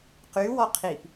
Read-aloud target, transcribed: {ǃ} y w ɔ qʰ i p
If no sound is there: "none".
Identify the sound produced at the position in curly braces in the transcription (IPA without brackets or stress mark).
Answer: q